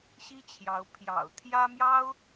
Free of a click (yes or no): yes